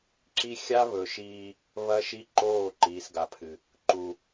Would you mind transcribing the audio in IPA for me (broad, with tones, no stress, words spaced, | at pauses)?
ǁi˦ xʲa˦ βɵ˨ʃiː˦ | βɐ˦ʃi˦ǃoː˦˨ ǃiː˨sɡa˨pʰɨ˨ | ǃu˨